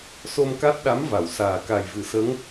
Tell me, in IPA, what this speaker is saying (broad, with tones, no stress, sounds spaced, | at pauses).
s o˧ m k a˦˥ t̚ ɗ a˧˥ m v a˨˩˨ w s aː˨˩ k a˨˩ j v ɨ˨˩˦ s ə˧˥ ŋ